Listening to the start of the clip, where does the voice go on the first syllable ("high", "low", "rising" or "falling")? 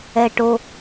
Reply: high